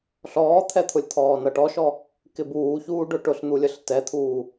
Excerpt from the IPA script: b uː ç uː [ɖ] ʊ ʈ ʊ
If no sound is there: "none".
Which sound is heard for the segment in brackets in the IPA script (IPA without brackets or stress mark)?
ɖ